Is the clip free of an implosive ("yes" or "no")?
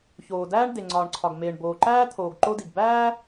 yes